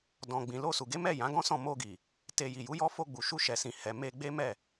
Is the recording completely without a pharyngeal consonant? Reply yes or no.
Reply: yes